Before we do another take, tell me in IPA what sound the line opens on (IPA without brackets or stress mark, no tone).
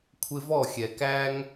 kʷʰ